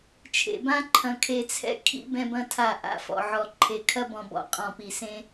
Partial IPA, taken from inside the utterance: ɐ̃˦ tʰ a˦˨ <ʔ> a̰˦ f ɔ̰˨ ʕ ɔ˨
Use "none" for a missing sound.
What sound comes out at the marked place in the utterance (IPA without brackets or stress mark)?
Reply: ʔ